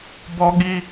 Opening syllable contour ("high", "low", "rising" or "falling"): high